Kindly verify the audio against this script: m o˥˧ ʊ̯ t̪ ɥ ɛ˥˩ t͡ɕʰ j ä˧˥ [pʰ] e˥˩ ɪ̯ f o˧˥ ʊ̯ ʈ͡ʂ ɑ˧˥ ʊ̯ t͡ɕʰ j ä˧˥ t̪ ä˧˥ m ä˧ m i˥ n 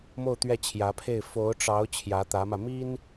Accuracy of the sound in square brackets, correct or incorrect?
correct